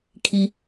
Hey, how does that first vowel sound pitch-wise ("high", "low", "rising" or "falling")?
low